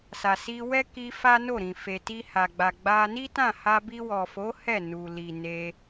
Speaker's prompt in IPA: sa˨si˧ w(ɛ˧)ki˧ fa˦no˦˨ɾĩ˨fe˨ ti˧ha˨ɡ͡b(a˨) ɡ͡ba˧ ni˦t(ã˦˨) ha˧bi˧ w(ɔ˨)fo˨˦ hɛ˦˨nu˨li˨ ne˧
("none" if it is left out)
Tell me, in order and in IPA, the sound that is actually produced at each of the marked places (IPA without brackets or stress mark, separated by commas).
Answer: ɛ˦, a˨, ã˦˨, ɔ˨